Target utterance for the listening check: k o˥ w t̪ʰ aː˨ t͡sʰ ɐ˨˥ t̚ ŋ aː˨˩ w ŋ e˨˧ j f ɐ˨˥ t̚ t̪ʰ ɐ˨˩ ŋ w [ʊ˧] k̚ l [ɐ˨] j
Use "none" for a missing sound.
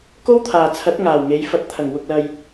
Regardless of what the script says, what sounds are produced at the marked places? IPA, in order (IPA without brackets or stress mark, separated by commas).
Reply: ʊ˨, ɐ˨